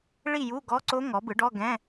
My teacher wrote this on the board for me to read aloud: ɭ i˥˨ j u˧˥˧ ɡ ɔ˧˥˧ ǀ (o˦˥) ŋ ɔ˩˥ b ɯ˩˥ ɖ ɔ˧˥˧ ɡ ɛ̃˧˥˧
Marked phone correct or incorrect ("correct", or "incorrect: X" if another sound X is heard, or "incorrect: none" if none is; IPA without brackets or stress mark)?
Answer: correct